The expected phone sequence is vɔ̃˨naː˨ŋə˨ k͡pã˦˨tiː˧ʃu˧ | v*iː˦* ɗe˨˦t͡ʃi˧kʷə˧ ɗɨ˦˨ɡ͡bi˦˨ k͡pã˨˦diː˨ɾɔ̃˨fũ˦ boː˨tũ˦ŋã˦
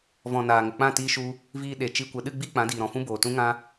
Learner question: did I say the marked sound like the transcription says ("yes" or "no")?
no